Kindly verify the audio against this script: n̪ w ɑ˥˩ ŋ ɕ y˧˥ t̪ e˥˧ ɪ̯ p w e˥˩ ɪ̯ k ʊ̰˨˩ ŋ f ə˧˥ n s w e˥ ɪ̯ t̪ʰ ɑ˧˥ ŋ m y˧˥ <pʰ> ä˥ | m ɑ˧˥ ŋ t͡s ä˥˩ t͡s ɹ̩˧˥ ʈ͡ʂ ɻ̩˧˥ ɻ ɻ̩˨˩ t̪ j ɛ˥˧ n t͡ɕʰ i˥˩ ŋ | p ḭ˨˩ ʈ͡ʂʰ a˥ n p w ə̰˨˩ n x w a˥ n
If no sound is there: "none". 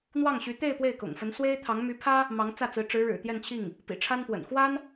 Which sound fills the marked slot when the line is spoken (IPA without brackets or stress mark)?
pʰ